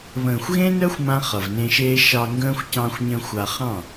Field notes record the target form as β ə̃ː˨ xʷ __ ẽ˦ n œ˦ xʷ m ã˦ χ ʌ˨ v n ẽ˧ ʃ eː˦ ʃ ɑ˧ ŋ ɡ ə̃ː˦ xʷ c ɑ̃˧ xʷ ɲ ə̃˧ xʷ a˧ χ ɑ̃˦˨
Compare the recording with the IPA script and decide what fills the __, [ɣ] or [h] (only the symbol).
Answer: ɣ